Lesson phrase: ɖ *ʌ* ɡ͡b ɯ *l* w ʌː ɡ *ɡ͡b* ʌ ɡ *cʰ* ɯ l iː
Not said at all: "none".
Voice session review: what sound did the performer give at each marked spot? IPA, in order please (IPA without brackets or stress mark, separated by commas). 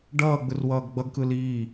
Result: ʌː, r, ɡ͡b, k